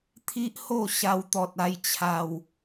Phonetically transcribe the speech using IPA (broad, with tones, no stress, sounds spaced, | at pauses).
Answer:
t̪ʰ i˦ ʔ h o˥˧ ɕ a˧ w t̪ ɔ˨ t̚ a˧ j t͡ɕʰ a˨˩ w